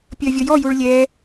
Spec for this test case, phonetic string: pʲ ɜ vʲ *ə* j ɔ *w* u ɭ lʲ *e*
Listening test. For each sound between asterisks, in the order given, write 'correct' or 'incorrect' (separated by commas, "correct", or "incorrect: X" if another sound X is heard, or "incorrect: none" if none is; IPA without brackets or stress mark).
incorrect: ɔ, incorrect: j, incorrect: ɛ